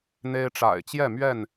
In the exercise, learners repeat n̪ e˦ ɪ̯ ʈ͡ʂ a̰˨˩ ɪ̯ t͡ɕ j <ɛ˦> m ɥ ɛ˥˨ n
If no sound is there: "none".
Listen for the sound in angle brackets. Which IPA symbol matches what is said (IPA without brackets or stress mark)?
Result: ɛ˥˨